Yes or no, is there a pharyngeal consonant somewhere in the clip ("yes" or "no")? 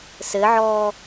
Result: yes